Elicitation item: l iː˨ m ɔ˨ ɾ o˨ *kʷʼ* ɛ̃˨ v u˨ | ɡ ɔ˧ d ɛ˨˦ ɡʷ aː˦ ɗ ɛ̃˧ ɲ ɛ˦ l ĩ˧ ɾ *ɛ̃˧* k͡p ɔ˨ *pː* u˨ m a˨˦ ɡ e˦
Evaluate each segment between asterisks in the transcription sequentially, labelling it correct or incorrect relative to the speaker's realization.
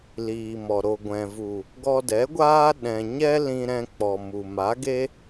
incorrect: ɡʷ, correct, incorrect: m

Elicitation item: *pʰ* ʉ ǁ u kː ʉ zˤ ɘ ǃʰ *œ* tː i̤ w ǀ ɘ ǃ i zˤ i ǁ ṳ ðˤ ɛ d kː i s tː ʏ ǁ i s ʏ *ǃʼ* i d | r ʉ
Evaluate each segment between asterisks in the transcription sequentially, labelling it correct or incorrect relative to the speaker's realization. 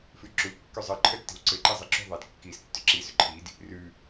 incorrect: f, correct, incorrect: ǃʰ

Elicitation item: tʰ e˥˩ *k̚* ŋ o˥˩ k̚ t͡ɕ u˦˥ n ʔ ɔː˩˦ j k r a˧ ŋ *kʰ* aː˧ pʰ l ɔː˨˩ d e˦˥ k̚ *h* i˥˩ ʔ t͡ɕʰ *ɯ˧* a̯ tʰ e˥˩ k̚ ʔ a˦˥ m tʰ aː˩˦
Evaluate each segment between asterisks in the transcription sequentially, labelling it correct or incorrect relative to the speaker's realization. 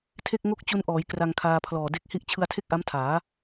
correct, correct, correct, correct

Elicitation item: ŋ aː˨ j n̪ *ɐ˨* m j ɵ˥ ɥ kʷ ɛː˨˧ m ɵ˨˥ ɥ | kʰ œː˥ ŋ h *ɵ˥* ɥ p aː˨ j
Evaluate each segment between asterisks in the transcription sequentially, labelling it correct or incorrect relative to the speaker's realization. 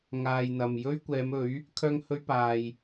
correct, correct

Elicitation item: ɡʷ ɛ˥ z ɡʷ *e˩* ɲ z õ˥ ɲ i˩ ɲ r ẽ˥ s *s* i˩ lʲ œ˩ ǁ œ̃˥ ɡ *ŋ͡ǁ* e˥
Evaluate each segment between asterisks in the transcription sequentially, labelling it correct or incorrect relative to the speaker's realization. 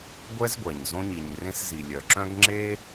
incorrect: ɛ˩, incorrect: z, correct

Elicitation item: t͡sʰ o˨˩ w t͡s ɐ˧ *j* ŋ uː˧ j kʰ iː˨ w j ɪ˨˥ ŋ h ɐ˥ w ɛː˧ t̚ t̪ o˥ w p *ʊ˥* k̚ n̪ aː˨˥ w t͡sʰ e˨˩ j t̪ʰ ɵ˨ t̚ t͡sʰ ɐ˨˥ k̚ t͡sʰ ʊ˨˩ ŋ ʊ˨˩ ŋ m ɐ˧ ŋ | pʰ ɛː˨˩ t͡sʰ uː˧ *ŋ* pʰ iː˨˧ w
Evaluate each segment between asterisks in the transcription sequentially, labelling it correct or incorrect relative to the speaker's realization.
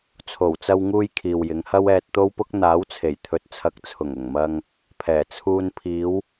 incorrect: w, correct, incorrect: n

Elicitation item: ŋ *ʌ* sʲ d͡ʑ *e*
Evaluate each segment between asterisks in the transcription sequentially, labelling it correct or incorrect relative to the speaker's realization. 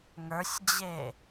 incorrect: ə˞, correct

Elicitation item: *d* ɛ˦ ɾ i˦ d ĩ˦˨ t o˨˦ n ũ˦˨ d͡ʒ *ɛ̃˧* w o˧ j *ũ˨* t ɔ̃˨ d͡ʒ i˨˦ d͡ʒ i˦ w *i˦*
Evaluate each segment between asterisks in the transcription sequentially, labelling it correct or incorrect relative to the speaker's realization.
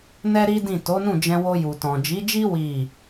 incorrect: n, correct, incorrect: u˨, incorrect: i˦˨

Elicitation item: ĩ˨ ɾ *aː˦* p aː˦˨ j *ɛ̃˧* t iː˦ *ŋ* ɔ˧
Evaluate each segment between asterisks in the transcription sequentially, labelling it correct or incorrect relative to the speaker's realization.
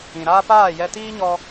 correct, incorrect: ɛ˧, incorrect: ɲ

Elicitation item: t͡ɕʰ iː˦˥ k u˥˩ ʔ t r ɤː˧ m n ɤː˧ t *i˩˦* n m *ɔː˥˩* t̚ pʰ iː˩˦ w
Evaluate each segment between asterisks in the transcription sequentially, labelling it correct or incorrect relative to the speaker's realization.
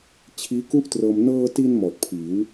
incorrect: i˧, incorrect: ɔː˨˩

